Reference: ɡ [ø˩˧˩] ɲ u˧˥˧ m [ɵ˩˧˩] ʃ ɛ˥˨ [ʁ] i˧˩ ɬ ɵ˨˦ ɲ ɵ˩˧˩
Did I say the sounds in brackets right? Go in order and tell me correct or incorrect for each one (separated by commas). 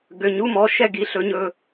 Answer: correct, incorrect, incorrect